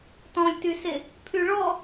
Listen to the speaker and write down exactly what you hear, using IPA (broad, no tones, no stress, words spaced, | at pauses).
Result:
tɔ̃lʲtyse | pʰyɭɔ